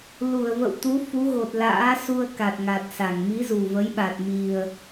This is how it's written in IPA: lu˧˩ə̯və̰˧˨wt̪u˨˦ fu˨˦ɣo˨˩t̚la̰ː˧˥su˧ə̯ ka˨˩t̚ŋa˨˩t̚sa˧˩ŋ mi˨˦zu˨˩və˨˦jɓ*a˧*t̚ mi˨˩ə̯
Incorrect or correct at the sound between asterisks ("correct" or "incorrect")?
incorrect